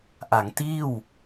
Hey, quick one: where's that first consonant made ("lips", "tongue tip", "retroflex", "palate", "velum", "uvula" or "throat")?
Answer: throat